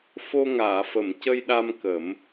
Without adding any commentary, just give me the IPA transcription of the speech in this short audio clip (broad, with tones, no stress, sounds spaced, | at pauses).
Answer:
f o˧ ŋ aː˨˩˨ f ə˨˩˨ m c ə˧ j ɗ a˧ m k ə˨˩˦ m